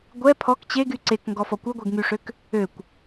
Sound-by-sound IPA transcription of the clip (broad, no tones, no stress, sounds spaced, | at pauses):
ɡʷ ɛ pʰ ɔ k t͡ɕ e ɡ y ǀ e k ŋ ɡ ɔ f ɔ kʷ œ ɡʷ ɛ ɡ ŋ y ʂ ø k | ø kʷ